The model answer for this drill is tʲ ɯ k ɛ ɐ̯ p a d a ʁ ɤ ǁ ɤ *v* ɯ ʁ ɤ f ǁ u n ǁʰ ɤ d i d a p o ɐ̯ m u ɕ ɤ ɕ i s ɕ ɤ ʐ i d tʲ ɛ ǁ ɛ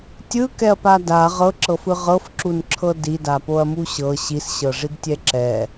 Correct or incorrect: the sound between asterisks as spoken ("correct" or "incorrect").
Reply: incorrect